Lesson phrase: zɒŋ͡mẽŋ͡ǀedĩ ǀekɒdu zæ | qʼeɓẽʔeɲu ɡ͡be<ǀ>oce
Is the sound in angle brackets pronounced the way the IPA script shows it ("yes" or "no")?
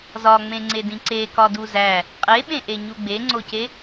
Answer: no